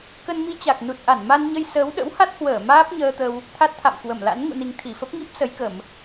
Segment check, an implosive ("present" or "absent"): present